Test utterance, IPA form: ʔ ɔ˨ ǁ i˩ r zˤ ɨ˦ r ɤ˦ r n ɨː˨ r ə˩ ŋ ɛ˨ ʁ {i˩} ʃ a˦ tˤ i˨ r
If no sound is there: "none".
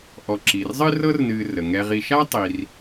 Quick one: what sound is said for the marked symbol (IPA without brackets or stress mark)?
i˨